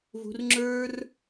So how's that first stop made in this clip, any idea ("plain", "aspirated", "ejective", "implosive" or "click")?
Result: click